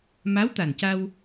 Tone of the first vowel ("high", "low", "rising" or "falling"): rising